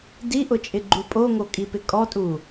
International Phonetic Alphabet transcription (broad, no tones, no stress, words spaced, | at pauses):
diʔʊt͡ʃʼɪ ɡ͡ǃupʼoŋo kʼipɪkʼɔtʼu